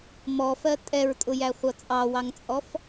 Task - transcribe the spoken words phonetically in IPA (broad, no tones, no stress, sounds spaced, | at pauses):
m ɔ f ɜ tʼ ɛ ɹ tʼ ʊ j æ χʷ ʌ t͡sʼ ɑ w ɑ ŋ t͡sʼ ɔ f